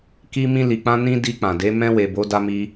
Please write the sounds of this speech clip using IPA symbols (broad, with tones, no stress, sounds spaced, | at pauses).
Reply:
k i˧ m ĩ˧ l i˨ k͡p ã˧ n ĩ˧ d i˧ k͡p ã˨ d e˨˦ m ɛ̃˧ w e˨ b o˨˦ d a˧ m i˧